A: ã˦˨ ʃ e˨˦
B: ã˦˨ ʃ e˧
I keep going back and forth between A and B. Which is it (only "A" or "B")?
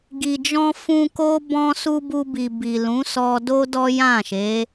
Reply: A